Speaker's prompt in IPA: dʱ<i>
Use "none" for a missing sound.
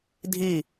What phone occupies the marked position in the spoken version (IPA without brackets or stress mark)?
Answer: i